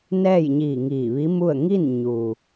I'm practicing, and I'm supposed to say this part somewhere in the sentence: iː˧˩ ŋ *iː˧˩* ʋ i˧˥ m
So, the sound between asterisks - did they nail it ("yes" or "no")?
yes